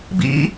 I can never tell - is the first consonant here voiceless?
no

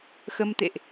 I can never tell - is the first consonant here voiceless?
yes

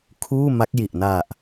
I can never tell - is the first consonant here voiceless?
yes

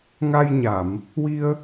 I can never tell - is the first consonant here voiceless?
no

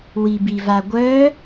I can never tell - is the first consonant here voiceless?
no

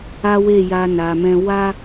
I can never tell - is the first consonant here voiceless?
no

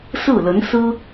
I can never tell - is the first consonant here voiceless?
yes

